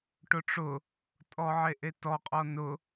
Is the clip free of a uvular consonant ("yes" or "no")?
no